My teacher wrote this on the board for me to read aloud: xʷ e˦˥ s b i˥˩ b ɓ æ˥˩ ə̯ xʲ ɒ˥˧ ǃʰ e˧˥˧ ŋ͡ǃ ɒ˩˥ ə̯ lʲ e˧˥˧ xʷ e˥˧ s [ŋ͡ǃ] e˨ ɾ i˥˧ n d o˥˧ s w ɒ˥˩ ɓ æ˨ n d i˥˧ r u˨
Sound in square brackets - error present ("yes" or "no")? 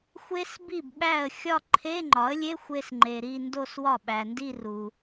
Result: no